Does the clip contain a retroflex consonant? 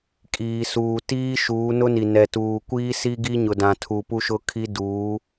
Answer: no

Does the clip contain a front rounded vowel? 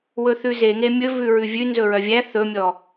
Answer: yes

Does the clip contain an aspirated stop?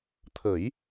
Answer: yes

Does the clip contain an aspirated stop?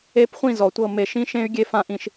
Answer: no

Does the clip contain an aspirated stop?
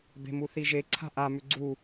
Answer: yes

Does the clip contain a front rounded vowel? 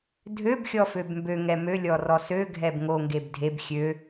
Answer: yes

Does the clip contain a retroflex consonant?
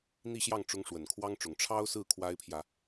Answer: yes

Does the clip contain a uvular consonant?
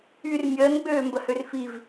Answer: no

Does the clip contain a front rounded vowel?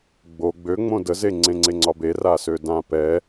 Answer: yes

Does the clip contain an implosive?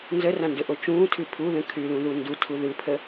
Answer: no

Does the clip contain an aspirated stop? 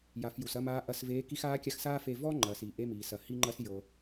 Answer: no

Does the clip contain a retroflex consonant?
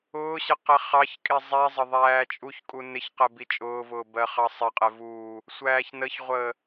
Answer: no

